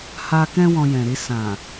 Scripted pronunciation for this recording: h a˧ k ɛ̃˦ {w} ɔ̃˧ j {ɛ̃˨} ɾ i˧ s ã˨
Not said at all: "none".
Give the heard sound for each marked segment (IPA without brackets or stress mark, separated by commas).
w, ɛ̃˨